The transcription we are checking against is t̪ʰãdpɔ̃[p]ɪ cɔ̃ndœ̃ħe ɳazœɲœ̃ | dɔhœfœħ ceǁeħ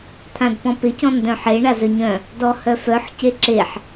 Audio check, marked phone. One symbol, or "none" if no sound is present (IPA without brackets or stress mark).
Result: p